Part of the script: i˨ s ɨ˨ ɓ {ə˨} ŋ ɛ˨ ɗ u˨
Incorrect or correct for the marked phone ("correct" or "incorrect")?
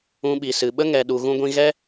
incorrect